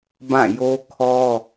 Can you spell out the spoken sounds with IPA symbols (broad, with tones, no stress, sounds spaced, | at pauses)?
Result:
b ã˦˨ j o˦ kʰ ɔ˦